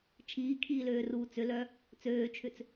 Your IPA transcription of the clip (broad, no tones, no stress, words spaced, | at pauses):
t͡ʃʰiːkʰiːløː ruːt͡sʏlœ | t͡søːt͡ʃʰʏt͡s